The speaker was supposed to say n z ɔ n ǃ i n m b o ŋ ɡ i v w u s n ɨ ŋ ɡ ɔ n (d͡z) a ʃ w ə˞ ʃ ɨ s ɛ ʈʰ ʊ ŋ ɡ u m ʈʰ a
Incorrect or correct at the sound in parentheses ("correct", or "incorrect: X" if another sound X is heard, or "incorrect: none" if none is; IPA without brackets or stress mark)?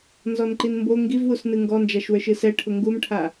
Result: incorrect: d͡ʒ